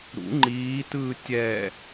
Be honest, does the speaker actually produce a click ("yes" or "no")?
yes